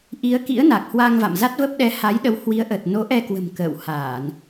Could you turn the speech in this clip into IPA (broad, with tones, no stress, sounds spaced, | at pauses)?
ʔ i˨˦ ə̯ k ḭ˧˥ ə̯ n a˨˩ k̚ h w a˧ ŋ v a̰˧˨ m z a˦˥ t̚ v ə˦˥ p̚ ɗ ɛ˨˦ h a˨˦ j ɗ ə˨˦ w h w i˨˦ ə̯ ʔ ə˨˩ t̚ n o˨˦ ʔ ɛ˧ k w ə̤˨˩ m k ə̰ː˧˨ w h aː˧˩˨ n